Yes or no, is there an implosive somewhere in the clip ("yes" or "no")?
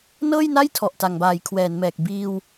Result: no